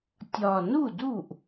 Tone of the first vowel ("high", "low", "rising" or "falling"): low